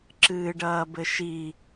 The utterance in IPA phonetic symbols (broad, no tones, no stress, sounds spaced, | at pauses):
ǁ ɨː ɖ ɐː b ɘ ʃ i